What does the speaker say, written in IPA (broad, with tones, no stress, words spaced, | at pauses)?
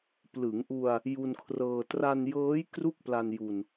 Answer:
plɯ˩˦ŋʔu˧a̯ | ju˧nkʰrɤː˧ tra˧njɤː˦˥j kru˥˩k̚pla˧n ju˧n